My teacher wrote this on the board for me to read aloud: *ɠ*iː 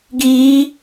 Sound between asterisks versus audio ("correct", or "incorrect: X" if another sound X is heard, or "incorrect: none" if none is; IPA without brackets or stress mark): incorrect: ɡ